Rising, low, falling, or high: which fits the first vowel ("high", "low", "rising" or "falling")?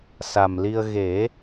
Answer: low